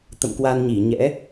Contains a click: no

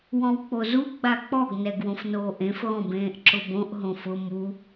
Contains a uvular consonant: no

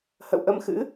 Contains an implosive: no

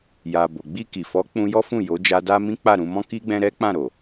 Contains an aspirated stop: no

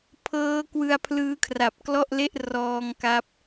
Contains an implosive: no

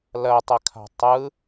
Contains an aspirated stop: yes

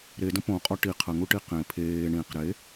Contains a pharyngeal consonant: no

